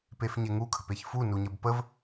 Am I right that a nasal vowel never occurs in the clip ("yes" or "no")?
yes